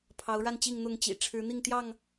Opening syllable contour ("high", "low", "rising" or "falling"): rising